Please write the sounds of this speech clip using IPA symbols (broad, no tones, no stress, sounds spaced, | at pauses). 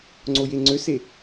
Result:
ŋ͡ǀ o j e ŋ͡ǀ ø s e